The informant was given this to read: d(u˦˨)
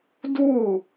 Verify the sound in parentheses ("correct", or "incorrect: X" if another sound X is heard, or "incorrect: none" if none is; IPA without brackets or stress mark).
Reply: correct